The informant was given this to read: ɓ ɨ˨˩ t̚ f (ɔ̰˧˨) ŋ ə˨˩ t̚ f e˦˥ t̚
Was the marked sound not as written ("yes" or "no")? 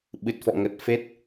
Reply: no